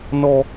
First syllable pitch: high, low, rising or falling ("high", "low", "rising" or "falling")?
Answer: high